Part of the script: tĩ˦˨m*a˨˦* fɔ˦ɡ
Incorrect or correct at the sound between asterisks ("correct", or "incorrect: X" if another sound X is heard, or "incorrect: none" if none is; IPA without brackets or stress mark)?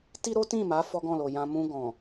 correct